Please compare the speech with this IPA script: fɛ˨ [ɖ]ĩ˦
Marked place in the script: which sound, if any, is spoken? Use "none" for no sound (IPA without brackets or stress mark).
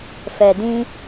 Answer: d